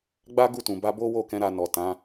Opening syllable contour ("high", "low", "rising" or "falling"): high